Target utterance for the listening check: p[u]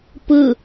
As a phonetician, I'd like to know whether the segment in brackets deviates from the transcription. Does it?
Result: yes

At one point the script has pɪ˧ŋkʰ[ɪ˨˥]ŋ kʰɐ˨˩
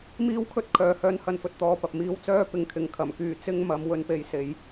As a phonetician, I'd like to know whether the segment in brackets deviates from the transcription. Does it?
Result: no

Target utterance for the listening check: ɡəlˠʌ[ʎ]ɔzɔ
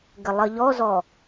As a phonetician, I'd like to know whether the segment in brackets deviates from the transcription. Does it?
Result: no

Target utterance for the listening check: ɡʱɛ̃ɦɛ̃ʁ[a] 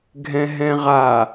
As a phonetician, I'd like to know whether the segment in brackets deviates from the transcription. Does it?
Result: no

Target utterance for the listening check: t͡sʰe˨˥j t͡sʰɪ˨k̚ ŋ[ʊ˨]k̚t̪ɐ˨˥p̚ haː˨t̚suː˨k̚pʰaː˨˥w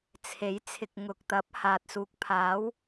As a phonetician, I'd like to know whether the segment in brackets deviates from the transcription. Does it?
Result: no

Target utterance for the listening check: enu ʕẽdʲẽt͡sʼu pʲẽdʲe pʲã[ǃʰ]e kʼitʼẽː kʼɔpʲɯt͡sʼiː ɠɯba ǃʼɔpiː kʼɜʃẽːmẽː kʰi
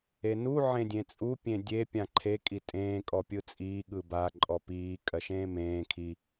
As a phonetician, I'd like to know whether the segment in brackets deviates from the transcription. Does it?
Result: no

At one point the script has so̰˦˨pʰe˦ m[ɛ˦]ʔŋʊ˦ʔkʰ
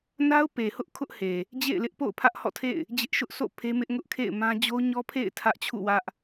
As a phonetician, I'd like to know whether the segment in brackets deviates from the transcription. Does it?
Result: yes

